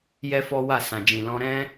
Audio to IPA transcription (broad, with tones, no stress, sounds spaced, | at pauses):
j ɛ˦ f ɔ˦ w a˦˨ s ã˨ d͡ʒ ĩ˨ l ɔ̃˧ ɾ ɛ̃˦